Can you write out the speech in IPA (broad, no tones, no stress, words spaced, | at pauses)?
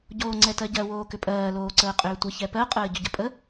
ɟoːŋ͡ǀɛtɜɟɜ woːkʏpʼɜː loːǀəːqʼʏːtʷə çɛpɜ qʼəːɟʏɟəpʼə